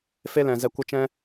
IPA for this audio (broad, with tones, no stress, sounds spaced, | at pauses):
f e˦ l ɛ̃˨ z ɛ˧ kʷ ə˦ t͡ʃ ɛ̃˦